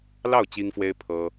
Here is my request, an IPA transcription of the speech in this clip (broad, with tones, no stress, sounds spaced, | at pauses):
l ɑ˥˩ ʊ̯ t͡ɕ i˥ ŋ f w e˥ ɪ̯ pʰ ɤ˥